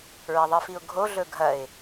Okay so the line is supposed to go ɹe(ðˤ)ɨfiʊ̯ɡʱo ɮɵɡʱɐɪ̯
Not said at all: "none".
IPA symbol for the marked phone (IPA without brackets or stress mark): ðˤ